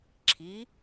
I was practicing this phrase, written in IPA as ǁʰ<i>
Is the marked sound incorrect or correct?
correct